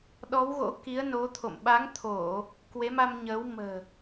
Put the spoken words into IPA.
ɗɔ˨˦wɣo̰˧˥ ki˨˦ə̯no˨˦t̪ʰo̰˧˨m ɓa˨˦ŋt̪ʰo˧˩˨ | kwe˨˦ma˧mɲəː˨˦w mə̤ː˨˩

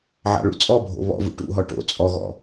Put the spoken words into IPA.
ʕɑ̰ɭṵt͡sʼɔbʱo̰ βɔ̰vṵ ʈṵɦɔ ʈo̰ t͡sʼɔɣɔ̰

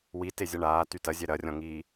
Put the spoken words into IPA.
witezʲɐ ɳaːty tɐzʲɛ ɾɐrʲɔ̃ŋiː

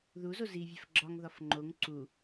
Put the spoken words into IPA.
ðuzo zivʲæf ɡ͡ǁɒŋðɒf ŋ͡ǃoŋ ǀu

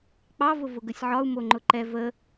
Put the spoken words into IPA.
k͡pɑvʊvʊ ɡəsʲʕɒu̯ moŋ͡ǃʊǃɛ və

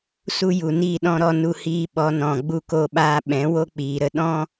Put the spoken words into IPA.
su˦ju˨niː˦˨ɗɔ̃˦ ɾɔ˧ nu˧hiː˧ ɓɔ˨˦nɔ̃˨ ɡ͡bu˧ko˧ɓaː˧ ɓɛ̃˨˦wo˦k͡piː˨ɾə˧ ɗɔ̃˦

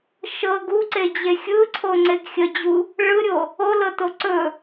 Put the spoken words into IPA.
ʃɤ ɡuǀed͡ʑe xʲɯǀʰoŋ͡ǀeɡ xʲəd͡ʑu | ɭɯɾʲo | olɤto ǀɵ

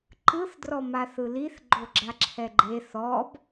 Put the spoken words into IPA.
ǃɯθdrɔma θɯliθ ɡ͡ǃoɡ͡ǁaǁʰɛɡ͡ǃe θɔb

